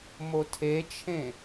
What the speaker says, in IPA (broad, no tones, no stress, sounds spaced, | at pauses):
m o tʰ e t͡ʃʰ ẽ